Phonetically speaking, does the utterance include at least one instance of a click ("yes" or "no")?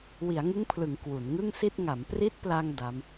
no